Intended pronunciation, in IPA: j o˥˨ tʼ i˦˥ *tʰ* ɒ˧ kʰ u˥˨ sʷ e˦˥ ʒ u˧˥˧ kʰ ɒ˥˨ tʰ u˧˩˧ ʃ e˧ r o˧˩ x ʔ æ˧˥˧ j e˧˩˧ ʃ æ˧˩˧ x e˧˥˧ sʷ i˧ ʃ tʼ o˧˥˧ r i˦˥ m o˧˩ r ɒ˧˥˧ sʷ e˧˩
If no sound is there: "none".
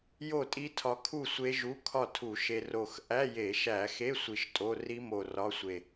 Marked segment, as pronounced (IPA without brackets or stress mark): tʰ